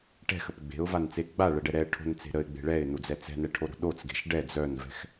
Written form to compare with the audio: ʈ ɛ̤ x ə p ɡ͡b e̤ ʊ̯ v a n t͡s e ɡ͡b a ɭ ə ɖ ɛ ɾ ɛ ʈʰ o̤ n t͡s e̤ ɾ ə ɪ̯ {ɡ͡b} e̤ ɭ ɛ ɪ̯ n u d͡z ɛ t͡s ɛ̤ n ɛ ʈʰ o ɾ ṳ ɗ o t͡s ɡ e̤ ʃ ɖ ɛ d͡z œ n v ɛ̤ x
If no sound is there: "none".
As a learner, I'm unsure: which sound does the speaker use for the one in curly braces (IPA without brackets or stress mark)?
ɡ͡b